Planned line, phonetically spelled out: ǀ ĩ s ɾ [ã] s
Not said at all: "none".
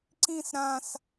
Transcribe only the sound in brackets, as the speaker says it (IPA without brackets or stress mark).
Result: ã